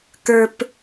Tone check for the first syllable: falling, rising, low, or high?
low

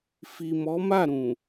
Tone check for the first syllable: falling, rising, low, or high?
low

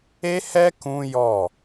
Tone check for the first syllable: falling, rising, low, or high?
high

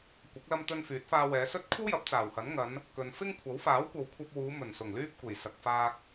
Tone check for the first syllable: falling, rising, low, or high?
rising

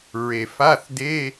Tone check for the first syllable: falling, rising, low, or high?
low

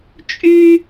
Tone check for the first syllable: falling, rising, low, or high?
high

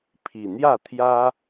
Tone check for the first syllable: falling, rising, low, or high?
low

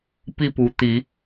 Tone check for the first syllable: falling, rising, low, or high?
falling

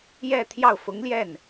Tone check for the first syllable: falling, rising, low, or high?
falling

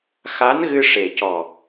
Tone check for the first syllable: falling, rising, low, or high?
rising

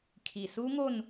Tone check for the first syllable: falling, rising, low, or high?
low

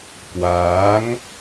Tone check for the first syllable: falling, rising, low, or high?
rising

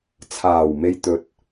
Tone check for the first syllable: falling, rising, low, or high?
low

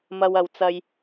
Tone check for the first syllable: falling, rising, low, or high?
high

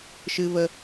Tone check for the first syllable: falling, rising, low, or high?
high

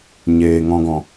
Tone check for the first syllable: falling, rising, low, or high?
low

